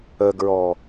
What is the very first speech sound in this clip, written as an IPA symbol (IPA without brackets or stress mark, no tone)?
ə